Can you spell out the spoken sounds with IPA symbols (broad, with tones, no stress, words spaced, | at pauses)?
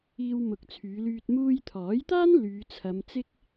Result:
iː˧wmʊ˨˥k̚t͡sʰyː˨˧lyː˧t̚ muː˧jt̪ʰɔː˨˥jt̪aː˥n lyː˨˧t͡sʰɐ˨˧mt͡sɪ˥k̚